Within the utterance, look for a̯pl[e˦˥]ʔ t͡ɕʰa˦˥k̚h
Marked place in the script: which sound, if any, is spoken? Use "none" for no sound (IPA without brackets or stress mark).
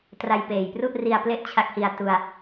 e˦˥